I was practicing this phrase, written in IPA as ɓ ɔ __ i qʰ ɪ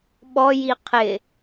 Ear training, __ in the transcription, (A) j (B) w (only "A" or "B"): A